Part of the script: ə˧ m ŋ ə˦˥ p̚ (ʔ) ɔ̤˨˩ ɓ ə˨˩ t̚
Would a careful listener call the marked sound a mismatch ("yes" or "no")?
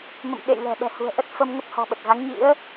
yes